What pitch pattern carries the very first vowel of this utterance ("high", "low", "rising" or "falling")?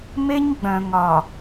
high